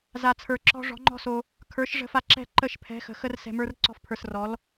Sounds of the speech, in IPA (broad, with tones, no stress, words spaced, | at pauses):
za˨t͡sʰə˞˨ǁɔ̤˧ ʐɔ̤˨˦ŋ͡ǃɔ̤˦so˧ | kʰə˞˨˦ʃ ʐə̤˧fa˧ ǁɛ̤˦˨ǃə˦˨ʃ pʰɛ̤˨˦xə̤˨ xə˧r sɛ̤˨mə˞˧r ǀɔ̤˧fpʰə˞˨srɔ˨˦l